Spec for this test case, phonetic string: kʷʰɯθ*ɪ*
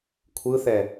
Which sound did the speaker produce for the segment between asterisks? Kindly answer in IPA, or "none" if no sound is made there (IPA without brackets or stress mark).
ɛ